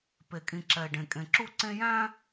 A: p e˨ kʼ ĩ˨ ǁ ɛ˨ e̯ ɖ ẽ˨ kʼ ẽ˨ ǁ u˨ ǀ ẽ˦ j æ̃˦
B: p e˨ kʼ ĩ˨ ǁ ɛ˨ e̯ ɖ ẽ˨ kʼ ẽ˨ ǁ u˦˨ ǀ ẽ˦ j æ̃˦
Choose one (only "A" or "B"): B